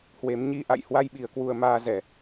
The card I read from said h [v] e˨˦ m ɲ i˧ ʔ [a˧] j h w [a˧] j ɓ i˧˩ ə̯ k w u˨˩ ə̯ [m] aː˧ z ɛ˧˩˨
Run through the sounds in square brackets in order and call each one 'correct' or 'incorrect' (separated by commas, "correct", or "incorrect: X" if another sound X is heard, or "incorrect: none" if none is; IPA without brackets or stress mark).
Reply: incorrect: w, incorrect: a̰˧˨, correct, correct